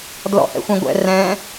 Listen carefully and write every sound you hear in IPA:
d l ɔ̰ h ɛ̰ xʷ ɛ̃ ɡʷ ɛ̰ r ɛ̃

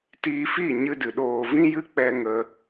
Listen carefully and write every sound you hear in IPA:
t iː˧ f i˦˨ ɲ ɨ˧ d ɨ˨ ɗ oː˨ v ĩ˧ j ɨ˧ k͡p ɛ˧ ŋ ə˧

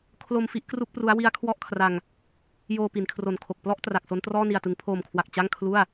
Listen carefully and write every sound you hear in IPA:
kʰ l o˧ m f i˥˩ ʔ k r u˥˩ k̚ p r u˦˥ a̯ w i˦˥ a̯ kʰ w ɔ˥˩ ʔ kʰ r a˧ ŋ | j oː˧ p i˩˦ n kʰ r o˨˩ n kʰ o˨˩ k̚ p l ɔ˥˩ ʔ t r a˨˩ k̚ s o˦˥ n t r ɔː˥˩ n i˨˩ a̯ t ɯ˩˦ ŋ pʰ oː˨˩ m kʰ w a˨˩ k̚ t͡ɕ a˥˩ ŋ kʰ l u˥˩ a̯

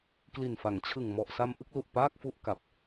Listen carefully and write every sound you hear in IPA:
k l i˨˩ n f a˩˦ ŋ t͡ɕʰ ɯ˨˩ ŋ m ɔ˨˩ ʔ s a˧ m ʔ ɯ˥˩ k̚ l u˨˩ ʔ p aː˥˩ k̚ f u˥˩ ʔ k a˨˩ p̚

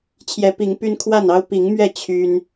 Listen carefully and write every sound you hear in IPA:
t͡ɕʰ j ɛ˨˦ p i˨˦ ŋ p y˦ n kʰ w a˥˨ n ɑ˦ ʊ̯ p i˨˦ ŋ m ɥ ɛ˥˨ t͡ɕʰ y˦ n

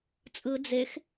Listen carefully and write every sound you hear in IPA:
t͡sʼ ɯ d͡z e x

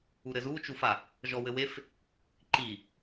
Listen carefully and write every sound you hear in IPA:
u ɾ ɘ z uː t͡ʃ u f a | ʒ ɔ w ɘ w e f | ǃ i

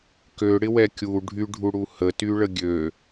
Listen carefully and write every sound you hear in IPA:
k ø ɽ ɪ w ɛ kʲ u ɖʱ y ɖʱ u ɽ u h ə t y ɭ ə ɡʲ ø

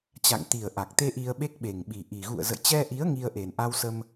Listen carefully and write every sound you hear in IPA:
t͡ɕ a̰˧˨ ŋ t̪ i˨˩ ə̯ ʔ a˨˩ k̚ t̪ e˧ ʔ i˧ ə̯ ɓ e˦˥ k̚ ɓ e˨˩ ŋ ɓ i˨˩ ʔ i˨˩ ɣ ṵ˧˨ ə̯ z ə̰˧˨ j t͡ɕ ɛ˧ ʔ i˨˦ ə̯ ŋ i˧ ə̯ ʔ e˨˩ n ʔ a˧ w s ə˧ m

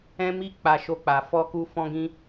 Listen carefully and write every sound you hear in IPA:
ɛ̃˦ m i˦ k͡p a˧ ʃ o˧ k͡p a˨ f ɔ˧ k u˧ f ɔ̃˧ ɡ ĩ˧

